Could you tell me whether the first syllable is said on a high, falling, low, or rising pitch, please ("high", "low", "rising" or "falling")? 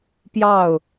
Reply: falling